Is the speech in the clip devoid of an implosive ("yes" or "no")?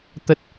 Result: yes